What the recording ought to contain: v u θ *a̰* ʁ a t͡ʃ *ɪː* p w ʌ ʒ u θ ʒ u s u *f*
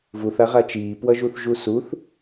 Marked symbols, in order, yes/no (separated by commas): no, no, no